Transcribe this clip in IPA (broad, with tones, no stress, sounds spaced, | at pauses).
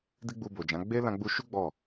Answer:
d i˦ ɡ͡b u˧ b o˨ d͡ʒ ã˨˦ ɡ͡b e˦ l ã˧ ɡ͡b u˧ ʃ u˦ ɡ͡b ɔ˦˨